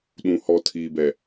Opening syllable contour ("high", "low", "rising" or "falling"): low